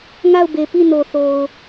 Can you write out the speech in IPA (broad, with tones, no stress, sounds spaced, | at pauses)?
ŋ a˦˨ ʊ̯ b e˨ p i˦˨ n o˨ θ o˨ ʊ̯